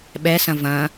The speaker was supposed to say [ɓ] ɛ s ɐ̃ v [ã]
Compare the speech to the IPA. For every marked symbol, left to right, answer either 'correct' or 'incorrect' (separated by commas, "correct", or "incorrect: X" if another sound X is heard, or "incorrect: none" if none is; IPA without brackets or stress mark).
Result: correct, incorrect: ɐ̃